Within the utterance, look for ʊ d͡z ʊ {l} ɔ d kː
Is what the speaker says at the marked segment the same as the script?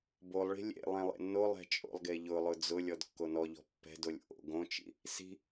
no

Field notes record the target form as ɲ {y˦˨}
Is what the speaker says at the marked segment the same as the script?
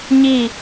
no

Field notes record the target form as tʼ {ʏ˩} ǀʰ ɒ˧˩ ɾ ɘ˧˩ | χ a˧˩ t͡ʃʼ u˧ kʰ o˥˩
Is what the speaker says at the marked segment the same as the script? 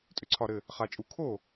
yes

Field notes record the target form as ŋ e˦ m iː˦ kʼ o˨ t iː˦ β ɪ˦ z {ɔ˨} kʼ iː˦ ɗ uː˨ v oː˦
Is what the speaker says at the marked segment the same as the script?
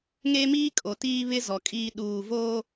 yes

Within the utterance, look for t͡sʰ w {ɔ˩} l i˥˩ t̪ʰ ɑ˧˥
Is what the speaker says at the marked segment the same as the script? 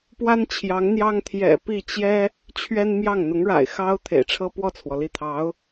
yes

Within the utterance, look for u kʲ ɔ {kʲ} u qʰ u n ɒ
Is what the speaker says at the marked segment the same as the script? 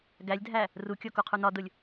no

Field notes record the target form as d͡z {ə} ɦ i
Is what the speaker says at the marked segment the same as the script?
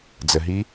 yes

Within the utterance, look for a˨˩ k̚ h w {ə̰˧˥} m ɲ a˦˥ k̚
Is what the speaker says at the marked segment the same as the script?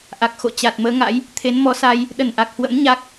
yes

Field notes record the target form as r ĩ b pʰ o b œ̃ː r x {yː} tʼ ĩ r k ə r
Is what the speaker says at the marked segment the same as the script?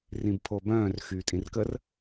yes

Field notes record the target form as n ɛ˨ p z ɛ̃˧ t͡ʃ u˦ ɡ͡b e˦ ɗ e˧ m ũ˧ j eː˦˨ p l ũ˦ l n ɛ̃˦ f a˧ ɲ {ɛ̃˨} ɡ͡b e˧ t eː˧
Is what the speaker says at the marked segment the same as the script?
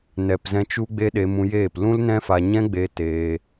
no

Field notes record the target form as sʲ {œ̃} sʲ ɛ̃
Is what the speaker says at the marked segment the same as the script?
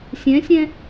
no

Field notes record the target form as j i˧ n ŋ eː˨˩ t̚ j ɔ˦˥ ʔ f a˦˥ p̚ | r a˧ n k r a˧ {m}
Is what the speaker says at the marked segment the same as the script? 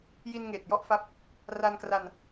no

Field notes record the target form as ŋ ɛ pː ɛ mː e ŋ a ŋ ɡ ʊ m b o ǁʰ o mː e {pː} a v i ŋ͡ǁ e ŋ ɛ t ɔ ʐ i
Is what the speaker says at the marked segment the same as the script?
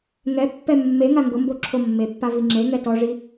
yes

